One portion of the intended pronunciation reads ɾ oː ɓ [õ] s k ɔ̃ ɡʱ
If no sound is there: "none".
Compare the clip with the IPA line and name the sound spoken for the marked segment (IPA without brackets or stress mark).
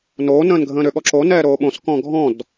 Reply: õ